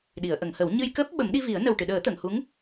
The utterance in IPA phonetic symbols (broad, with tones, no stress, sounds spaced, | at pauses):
ɗ i˨˩˨ ə̯ ʔ ə˨˩˨ ŋ h ə˨˩˦ w ɲ ɨ˧ j k əː˦˥ p̚ ɓ ə˨˩˦ m ɗ i˧ v i˨˩˦ ə̯ n ə˨˩ w ʈ ɨ˨˩˨ ɗ əː˨˩˦ t̪ ə˨˩˨ ŋ h u˧˥ ŋ